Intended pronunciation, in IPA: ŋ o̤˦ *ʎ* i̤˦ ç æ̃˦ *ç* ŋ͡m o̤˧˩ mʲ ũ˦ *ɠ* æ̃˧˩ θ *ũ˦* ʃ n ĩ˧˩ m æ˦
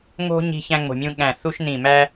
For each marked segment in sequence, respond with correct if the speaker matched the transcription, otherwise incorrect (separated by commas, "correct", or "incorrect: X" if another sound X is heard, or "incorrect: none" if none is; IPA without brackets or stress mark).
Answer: incorrect: ɲ, incorrect: none, correct, incorrect: u˦